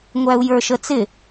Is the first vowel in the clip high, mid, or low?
low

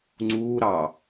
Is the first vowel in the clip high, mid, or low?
high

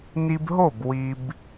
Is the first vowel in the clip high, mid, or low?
high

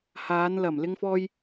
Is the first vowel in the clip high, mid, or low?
low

